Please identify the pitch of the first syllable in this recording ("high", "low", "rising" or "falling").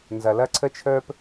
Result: low